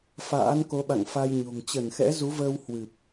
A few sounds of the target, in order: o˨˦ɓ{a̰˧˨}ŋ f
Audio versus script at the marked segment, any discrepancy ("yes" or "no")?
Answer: no